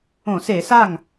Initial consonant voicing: voiceless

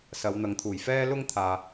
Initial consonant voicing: voiceless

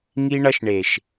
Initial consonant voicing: voiced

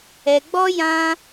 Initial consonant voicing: voiced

